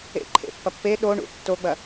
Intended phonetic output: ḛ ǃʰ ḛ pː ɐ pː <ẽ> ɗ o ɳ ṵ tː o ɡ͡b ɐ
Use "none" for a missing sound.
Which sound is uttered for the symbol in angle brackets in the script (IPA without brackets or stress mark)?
e